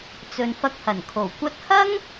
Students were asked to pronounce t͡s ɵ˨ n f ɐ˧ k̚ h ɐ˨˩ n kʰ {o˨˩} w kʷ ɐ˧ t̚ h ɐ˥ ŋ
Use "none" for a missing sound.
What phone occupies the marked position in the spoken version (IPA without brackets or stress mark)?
o˨˩